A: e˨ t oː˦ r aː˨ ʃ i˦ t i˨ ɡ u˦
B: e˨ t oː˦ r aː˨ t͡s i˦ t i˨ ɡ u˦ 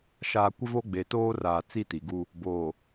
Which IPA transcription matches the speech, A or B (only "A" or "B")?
B